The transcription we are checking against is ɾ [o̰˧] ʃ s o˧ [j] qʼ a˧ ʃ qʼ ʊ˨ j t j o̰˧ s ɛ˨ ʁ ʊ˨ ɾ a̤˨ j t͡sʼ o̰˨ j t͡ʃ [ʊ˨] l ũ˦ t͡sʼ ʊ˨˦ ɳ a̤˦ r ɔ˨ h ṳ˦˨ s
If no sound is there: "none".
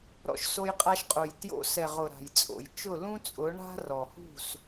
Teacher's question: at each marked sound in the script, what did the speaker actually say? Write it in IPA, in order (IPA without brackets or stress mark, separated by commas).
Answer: ɔ̰˧, j, ʊ˦˨